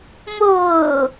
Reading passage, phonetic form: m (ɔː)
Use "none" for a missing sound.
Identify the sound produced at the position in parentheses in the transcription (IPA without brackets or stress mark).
ʊː